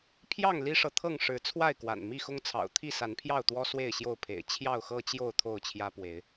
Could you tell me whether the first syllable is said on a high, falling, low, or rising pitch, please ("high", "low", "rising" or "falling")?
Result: falling